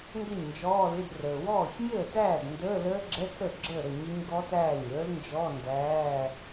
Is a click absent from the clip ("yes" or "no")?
no